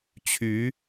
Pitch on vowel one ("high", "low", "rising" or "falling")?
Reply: rising